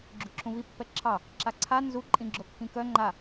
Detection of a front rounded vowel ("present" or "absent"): present